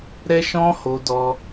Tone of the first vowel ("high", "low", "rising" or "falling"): high